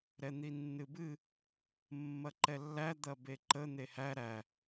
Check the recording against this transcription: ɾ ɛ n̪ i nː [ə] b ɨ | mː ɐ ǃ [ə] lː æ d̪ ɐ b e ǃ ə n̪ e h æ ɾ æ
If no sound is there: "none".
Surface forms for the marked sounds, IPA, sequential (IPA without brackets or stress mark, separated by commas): ɨ, ɛ